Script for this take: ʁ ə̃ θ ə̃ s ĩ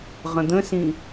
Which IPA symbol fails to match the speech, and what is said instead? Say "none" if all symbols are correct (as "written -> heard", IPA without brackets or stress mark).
θ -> d̪